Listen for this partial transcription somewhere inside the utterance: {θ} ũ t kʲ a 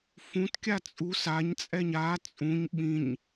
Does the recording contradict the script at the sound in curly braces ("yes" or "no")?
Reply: yes